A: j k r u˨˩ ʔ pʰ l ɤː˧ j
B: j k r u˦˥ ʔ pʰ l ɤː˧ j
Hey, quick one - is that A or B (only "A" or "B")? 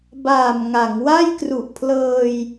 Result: A